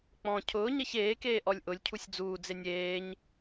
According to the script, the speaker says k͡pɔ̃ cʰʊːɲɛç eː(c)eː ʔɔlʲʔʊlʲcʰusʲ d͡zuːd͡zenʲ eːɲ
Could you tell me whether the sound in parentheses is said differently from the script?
yes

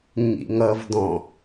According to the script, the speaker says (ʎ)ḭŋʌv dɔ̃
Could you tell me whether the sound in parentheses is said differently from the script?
yes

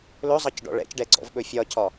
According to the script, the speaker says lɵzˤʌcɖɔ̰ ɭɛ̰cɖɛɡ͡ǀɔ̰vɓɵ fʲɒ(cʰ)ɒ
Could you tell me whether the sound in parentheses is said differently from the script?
no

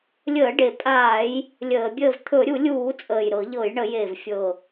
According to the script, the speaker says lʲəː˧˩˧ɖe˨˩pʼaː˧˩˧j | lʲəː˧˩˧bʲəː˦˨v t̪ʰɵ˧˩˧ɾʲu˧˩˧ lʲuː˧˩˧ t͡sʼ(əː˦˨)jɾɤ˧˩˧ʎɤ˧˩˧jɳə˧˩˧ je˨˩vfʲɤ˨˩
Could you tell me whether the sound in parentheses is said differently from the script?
yes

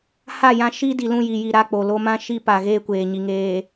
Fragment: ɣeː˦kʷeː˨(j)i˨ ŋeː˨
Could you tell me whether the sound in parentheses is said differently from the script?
yes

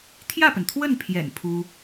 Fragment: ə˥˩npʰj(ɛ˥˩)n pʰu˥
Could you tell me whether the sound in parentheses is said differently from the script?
yes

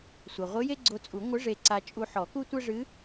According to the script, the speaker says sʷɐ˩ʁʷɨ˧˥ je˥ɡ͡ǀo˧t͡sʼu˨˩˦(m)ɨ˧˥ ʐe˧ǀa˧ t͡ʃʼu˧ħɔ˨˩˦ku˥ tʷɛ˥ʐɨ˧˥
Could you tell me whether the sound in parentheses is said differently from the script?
yes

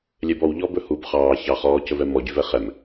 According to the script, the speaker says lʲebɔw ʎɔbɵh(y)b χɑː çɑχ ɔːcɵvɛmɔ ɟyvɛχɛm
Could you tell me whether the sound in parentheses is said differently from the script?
yes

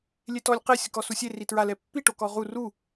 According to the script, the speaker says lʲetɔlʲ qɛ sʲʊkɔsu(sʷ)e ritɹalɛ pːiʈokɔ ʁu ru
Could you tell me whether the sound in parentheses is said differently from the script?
yes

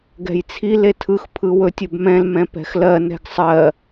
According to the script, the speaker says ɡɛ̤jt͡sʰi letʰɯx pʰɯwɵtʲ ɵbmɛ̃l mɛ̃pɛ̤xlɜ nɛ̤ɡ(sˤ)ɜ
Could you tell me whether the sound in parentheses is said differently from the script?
no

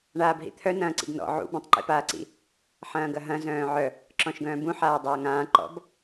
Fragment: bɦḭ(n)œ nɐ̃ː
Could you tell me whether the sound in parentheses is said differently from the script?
yes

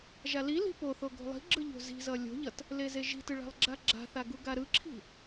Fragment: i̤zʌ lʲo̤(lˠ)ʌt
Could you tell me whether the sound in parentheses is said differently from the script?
yes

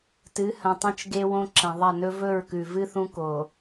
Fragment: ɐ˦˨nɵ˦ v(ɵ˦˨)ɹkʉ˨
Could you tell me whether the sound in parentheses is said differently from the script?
no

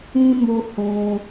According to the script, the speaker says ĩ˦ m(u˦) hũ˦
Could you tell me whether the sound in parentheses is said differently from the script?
no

